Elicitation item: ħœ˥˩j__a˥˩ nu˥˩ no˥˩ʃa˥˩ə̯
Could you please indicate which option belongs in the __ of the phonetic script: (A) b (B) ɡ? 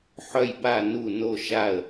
A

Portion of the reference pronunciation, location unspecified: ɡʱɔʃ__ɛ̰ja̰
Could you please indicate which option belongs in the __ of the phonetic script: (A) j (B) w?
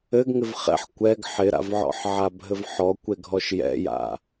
A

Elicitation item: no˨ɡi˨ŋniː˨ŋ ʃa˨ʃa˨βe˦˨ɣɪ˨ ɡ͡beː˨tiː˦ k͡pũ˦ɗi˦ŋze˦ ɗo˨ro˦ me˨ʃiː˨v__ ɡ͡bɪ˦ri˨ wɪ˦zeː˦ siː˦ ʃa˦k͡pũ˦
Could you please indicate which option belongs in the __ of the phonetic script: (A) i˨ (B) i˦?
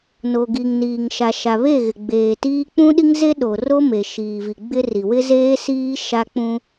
A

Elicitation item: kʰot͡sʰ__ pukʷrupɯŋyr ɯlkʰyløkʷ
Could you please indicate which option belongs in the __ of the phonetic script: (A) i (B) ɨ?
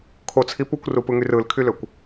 A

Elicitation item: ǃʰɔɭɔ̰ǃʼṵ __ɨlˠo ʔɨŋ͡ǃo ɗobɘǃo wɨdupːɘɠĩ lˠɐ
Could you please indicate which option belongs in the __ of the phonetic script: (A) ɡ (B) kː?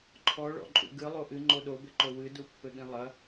A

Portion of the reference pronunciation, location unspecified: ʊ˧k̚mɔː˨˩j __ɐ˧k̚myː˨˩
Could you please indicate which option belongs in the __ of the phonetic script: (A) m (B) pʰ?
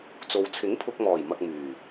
A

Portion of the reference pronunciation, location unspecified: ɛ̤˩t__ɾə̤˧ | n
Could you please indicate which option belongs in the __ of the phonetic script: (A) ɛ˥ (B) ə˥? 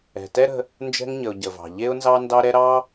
A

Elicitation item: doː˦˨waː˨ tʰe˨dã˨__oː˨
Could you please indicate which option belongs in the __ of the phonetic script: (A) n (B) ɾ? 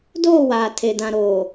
B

